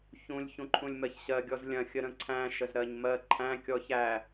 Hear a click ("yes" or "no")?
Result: yes